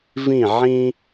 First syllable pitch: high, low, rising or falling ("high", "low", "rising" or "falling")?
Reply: falling